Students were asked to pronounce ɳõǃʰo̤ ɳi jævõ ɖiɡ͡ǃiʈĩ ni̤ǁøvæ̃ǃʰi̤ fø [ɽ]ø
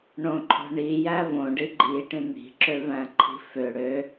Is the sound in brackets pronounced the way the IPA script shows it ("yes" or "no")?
yes